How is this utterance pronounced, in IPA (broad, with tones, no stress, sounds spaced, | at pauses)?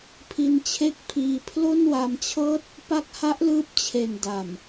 pʰ i˧ n t͡ɕʰ e˥˩ k̚ pʰ iː˧ pʰ l o˥˩ n w a˧ m t͡ɕʰ ɤː˥˩ t̚ | p a˦˥ k̚ h a˦˥ ʔ l ɯː˦˥ p̚ t͡ɕʰ e˨˩ n d a˨˩ m